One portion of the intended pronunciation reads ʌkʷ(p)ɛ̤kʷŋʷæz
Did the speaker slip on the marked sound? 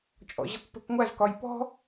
no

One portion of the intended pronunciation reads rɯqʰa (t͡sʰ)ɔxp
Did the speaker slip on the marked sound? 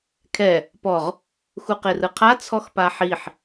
no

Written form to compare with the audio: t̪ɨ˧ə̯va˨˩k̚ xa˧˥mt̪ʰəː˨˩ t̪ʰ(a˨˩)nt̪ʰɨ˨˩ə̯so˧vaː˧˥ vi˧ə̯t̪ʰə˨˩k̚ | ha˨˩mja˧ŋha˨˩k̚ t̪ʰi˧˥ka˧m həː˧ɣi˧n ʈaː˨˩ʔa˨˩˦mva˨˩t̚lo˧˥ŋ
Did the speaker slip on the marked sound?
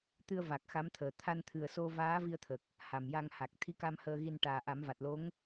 yes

